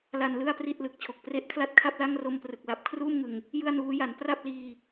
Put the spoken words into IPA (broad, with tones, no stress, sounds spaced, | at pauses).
l a˧ n l ɯ˥˩ a̯ p r i˥˩ t̚ l ɯ˨˩ k̚ t͡ɕʰ o˨˩ k̚ p r e˦˥ ʔ kʰ l a˥˩ t̚ kʰ a˥˩ p̚ l a˥˩ ŋ r o˧ m p r ɯ˨˩ k̚ l a˨˩ p̚ kʰ r uː˥˩ m ŋ ɯ˨˩ ŋ | j ɯ˥˩ a̯ n uː˦˥ j a˩˦ n p r a˥˩ p̚ l iː˧